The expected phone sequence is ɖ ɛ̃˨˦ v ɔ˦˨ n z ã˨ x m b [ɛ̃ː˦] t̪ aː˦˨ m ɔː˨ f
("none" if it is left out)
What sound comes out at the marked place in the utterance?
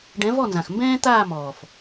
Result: ɛ̃ː˦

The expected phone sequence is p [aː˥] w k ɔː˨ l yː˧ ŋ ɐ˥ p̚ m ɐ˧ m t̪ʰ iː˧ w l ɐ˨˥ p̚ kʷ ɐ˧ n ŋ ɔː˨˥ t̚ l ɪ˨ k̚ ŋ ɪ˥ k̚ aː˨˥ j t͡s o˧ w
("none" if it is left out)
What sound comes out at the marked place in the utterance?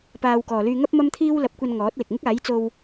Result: aː˧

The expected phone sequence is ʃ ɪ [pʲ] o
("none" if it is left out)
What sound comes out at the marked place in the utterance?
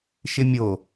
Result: mʲ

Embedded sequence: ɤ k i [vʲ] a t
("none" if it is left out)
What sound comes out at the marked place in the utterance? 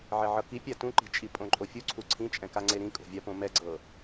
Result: pʲ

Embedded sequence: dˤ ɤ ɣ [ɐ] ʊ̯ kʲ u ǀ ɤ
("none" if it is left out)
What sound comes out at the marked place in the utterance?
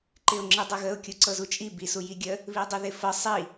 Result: ə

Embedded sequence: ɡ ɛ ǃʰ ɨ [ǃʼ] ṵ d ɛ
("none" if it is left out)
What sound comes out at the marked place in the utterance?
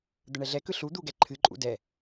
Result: ǃʼ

